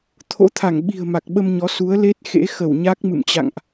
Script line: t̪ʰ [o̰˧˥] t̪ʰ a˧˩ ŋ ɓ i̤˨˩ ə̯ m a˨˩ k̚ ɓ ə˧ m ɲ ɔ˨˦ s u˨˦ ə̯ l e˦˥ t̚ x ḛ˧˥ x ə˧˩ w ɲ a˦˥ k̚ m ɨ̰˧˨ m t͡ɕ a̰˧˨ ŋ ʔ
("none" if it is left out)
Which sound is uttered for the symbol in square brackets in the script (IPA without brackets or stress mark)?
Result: o̰˧˥